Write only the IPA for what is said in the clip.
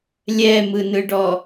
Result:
lʲɛmɯnɯɖɔ

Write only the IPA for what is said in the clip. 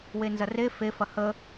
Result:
wenzɐre fe fɐhə

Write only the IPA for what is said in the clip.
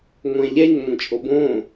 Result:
ŋʷɛ̃ʎɛɲ ŋʷə̃t͡ʃʼobõ

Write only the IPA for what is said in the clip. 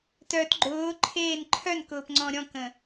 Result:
tœt ɡ͡ǃʊːǃʰeːn ǃʰœnkʊːpŋ͡ǀɔ̃ ɾʲɔ̃kə̃

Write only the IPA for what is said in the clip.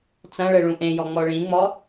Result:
t͡sɐ̃ɭɘɭũ ʔẽjɔŋ͡mɔ ɭĩŋ͡mɔ

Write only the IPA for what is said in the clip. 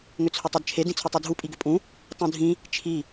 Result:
ŋʏt͡sʰʏtˤedt͡ʃʰe dĩt͡sʰutˤidʱu pʼiɡʏpʼũ | tˤũdʱĩ | t͡ʃʰi

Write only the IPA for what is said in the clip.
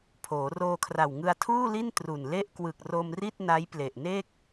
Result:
pʰoː˩˦roː˧kʰra˨˩w ŋɯ˧a̯tʰuː˥˩li˥˩n tru˨˩n le˥˩ʔkwɯ˨˩k̚ ro˧mri˥˩t̚ na˦˥jple˨˩ʔne˥˩k̚

